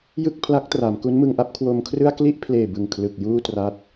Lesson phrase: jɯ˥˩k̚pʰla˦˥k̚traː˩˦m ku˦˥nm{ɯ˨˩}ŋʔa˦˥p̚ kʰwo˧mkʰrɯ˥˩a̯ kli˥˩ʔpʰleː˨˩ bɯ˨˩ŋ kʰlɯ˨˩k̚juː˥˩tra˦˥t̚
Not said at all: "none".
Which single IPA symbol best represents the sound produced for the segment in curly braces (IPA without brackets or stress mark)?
ɯ˧